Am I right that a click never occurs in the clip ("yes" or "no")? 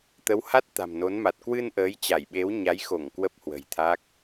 yes